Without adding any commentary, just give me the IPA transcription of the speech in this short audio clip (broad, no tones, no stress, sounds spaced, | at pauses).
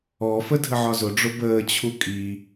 ɔ f ə dʱ ə ʕ ɒ z ʊ ɖ͡ʐ ʊ b əː t͡ɕʰ u kʼ i